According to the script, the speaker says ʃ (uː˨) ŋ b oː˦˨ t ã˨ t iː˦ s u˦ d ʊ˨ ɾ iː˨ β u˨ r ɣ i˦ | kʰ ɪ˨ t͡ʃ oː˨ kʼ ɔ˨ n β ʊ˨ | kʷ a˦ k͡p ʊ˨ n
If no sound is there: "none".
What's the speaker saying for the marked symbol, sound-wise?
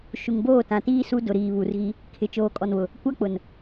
u˨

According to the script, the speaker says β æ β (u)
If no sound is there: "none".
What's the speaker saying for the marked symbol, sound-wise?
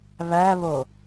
o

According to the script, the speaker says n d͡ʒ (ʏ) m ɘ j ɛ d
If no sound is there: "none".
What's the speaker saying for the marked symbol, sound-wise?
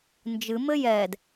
ɨ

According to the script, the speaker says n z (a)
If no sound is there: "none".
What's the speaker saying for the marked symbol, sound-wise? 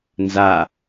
a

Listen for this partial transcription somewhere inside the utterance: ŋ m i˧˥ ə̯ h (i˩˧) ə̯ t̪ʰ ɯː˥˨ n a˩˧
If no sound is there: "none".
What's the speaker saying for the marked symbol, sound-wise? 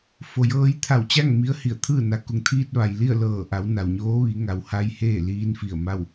i˧˩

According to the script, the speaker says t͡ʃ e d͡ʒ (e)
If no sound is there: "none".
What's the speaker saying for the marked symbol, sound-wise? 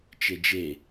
e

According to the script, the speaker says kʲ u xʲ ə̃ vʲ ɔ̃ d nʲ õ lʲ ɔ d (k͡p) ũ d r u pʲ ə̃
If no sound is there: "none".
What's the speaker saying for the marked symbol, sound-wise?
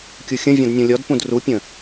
p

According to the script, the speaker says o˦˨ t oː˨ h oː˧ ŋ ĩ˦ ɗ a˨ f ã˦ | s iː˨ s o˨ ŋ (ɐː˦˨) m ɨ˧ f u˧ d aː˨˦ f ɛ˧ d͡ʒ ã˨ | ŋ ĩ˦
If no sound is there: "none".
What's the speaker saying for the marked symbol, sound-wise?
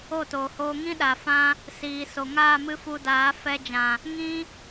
aː˦˨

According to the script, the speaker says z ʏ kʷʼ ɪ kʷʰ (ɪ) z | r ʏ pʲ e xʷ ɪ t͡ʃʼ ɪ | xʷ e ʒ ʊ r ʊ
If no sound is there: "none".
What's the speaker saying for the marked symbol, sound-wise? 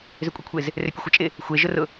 ɪ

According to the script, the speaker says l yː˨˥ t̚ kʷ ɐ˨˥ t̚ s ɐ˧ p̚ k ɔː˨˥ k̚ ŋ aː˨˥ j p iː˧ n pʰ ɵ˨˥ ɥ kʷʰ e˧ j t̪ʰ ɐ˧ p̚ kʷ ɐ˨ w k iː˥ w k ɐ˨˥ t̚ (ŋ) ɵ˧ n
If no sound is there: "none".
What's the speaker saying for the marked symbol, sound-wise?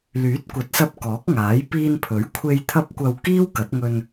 ŋ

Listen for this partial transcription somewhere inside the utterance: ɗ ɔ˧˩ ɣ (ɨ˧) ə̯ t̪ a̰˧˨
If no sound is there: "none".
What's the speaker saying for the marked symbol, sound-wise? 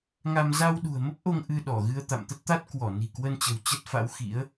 ɨ˧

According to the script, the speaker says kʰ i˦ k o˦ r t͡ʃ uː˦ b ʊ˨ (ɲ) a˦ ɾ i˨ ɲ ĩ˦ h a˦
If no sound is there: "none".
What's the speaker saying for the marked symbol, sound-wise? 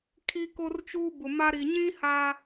m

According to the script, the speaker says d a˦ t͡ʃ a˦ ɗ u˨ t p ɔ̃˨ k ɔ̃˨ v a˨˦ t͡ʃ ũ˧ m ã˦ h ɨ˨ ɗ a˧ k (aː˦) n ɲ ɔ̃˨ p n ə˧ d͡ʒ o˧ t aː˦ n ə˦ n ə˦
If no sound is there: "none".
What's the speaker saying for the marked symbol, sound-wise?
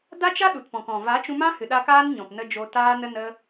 aː˦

